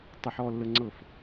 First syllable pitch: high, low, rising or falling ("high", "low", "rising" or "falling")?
high